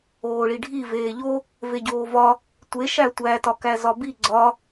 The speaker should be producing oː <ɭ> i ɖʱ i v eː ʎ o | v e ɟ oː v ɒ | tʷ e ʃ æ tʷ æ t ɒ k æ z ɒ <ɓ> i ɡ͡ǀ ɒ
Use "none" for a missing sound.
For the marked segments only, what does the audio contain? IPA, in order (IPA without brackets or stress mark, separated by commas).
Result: ɭ, b